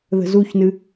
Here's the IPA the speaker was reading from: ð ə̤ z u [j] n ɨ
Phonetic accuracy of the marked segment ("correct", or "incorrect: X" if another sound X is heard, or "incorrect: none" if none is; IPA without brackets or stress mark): incorrect: ç